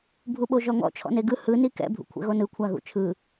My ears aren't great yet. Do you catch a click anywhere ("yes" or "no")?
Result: no